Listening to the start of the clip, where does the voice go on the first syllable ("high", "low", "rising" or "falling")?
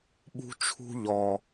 high